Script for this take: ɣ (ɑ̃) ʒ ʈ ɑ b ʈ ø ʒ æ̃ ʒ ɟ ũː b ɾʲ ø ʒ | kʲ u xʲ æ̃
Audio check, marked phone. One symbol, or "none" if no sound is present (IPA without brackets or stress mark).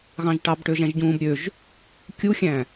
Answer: ɑ̃